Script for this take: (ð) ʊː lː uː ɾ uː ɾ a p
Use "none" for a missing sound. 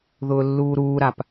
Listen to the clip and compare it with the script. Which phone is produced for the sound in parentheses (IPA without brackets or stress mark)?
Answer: ð